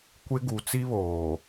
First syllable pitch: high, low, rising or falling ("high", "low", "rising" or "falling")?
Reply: high